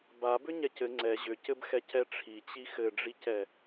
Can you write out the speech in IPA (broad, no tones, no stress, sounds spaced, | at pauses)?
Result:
b a b ʏ ɲ ɛ c ɘ ŋ͡ǀ ɛ ʑ ʏ c ɘ b x ɛ c ɛ ʈ͡ʂʰ i t͡ɕ i x ɘ ɖ͡ʐ i c ɛ